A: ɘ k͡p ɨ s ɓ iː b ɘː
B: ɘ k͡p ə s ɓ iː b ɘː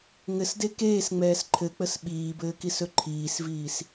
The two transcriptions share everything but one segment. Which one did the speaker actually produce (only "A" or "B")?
B